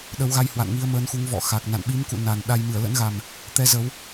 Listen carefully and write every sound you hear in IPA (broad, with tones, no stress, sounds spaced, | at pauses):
ɗ ə˨˦ w ɣ a˧ j h w a̰˧˨ n ŋ i˧ ə̯ m əː˨˦ n x u˨˦ ŋ v ɔ̰˧˨ x a˨˩ k̚ n a̰˧˨ n ɓ i˨˦ m k ṵ˧˨ n a˨˩ n ɗ a˧ j m ɨ˧˩ ə̯ l ə̰˧˥ n ɣ a˨˩ m | t̪ ɛ˧ z ə˨˦ w